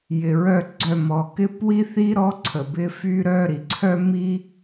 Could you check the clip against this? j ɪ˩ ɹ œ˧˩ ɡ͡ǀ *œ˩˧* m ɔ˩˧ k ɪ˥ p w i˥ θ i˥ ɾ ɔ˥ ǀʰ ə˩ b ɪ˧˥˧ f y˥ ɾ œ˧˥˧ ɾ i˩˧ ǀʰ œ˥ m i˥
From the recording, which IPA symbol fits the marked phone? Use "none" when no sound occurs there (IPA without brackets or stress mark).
œ˧˩